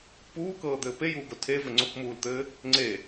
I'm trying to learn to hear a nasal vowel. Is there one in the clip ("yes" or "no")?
no